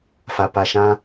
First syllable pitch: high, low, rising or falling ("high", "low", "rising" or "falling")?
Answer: low